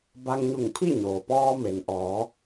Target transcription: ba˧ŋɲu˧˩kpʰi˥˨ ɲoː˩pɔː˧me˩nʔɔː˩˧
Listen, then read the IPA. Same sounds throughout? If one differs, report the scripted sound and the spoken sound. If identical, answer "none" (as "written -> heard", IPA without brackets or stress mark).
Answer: k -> ŋ